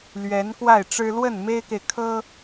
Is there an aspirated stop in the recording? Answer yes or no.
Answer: yes